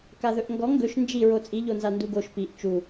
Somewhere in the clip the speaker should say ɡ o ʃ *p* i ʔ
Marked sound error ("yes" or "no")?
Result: no